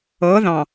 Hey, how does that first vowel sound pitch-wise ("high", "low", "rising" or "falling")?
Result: rising